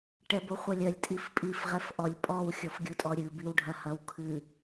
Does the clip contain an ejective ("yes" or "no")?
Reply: yes